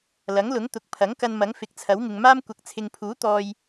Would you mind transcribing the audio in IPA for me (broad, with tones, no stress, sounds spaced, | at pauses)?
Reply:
l ɐ˨˥ ŋ l ʊ˨˥ ŋ t̪ ʊ˨˥ k̚ pʰ ɐ˨˥ ŋ k ɐ˧ n m ɐ˨˥ ŋ f ɪ˨˥ k̚ t͡sʰ ɐ˨˥ w ŋ ɪ˨ ŋ m aː˥ m kʷ ɐ˨ k̚ t͡sʰ ɪ˨ ŋ pʰ uː˨˥ t̪ ɔː˧ j